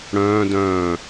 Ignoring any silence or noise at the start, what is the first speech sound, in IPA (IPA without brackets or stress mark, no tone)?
ɽ